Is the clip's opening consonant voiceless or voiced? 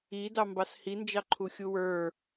voiced